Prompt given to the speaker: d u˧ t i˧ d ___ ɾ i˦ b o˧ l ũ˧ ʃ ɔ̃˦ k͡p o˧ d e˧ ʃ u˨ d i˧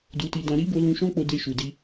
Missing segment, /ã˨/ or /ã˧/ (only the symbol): ã˧